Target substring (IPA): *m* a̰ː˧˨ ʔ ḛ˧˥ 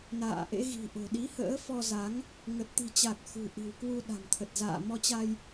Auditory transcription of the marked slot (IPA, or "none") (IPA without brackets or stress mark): n